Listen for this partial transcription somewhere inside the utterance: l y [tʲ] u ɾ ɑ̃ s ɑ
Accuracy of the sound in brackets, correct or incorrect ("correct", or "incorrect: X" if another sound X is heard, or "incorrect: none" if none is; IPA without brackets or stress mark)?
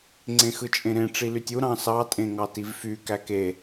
correct